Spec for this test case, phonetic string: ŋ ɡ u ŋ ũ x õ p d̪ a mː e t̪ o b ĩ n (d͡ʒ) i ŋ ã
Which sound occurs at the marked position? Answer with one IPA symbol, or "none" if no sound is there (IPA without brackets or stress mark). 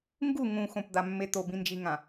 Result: d͡ʒ